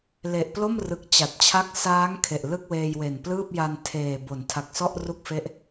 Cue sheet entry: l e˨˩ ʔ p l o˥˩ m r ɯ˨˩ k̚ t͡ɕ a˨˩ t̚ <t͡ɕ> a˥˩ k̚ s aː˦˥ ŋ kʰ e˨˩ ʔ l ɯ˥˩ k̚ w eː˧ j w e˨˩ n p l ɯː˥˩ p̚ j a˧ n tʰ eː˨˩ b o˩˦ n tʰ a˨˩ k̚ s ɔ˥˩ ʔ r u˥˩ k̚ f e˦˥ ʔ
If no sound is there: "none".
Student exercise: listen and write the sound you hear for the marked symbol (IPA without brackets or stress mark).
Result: t͡ɕʰ